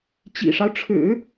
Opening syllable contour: low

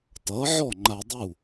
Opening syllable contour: rising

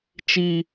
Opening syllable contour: high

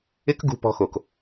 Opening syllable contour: high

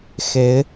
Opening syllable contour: rising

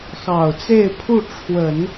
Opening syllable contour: low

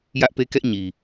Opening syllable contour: high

